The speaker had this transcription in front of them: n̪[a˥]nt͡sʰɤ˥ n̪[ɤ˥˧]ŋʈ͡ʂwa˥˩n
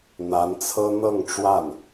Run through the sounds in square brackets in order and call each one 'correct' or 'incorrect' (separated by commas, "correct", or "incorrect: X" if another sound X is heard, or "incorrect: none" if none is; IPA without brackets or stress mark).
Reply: incorrect: a˧˥, correct